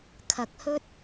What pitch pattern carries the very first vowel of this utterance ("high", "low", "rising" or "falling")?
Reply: rising